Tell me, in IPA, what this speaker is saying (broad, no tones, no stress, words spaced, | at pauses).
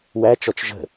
wæt͡ʃɔt͡ʃ ʒə̤